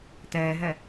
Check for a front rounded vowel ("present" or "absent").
absent